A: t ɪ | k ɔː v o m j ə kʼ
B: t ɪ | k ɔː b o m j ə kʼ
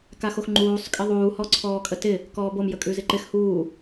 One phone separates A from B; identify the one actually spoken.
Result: B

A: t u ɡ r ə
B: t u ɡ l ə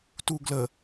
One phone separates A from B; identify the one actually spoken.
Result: B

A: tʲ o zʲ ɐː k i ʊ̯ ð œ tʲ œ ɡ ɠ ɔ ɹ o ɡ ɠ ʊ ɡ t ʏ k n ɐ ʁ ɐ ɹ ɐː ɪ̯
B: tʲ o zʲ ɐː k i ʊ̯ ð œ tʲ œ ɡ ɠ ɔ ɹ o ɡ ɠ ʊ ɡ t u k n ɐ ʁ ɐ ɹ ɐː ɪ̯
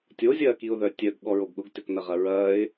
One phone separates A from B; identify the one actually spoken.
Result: A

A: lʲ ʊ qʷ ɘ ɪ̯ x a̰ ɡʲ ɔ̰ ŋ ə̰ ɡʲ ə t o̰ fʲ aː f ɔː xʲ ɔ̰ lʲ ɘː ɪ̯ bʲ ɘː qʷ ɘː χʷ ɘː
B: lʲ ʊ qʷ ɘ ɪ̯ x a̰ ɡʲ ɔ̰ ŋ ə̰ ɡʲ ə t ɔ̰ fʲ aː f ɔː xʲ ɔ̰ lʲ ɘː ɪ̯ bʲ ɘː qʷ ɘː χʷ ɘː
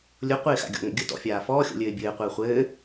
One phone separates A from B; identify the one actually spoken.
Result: B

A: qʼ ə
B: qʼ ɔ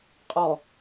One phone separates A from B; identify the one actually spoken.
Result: B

